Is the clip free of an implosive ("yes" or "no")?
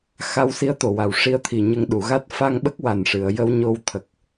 no